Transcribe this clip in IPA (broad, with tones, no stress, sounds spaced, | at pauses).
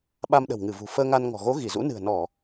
ɓ a˧ m ɗ ə̤˨˩ w ŋ ɨ˧˩ v ṳ˨˩ f əː˧ ŋ a˧ n ŋ ɔ̤˨˩ ɣ o˨˦ ɣ i˧˩ z ṵ˧˥ n ɨ̤˨˩ ə̯ n ɔ˧˩˨